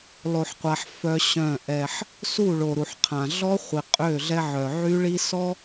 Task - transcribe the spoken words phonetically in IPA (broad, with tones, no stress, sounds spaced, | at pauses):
lˠ o˨ ħ qʷ a˨ ħ f œ˦ ɕ œ̃˦˨ ʔ ɛ˦ ħ | s u˦˨ ɭ o˨ ɾ u˨ ħ qʰ ã˨ ɮ ɔ˦ χʷ i˨ qʼ ø˦˨ ɮ ɛ˦ ʕ œ˨ ʕ y˦ ɭ i˦ s ɔ˦